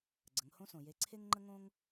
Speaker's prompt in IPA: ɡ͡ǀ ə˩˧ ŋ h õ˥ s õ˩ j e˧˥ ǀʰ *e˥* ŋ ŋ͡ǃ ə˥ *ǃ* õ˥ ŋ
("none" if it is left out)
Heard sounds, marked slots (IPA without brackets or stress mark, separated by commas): e˥, ŋ